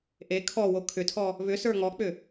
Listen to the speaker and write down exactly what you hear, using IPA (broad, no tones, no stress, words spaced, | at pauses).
ʔe kʰɔwo kʰʏtʰɔ | βʏ sə˞ŋɔk͡pʏ